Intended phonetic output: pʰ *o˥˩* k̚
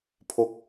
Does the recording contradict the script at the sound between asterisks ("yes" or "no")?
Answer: yes